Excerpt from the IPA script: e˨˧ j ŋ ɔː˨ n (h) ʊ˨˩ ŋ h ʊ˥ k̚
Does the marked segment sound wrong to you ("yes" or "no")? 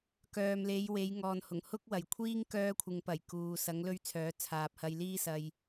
no